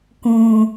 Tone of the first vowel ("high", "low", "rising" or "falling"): low